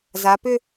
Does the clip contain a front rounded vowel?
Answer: yes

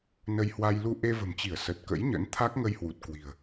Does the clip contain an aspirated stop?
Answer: yes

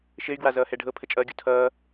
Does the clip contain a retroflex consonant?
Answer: yes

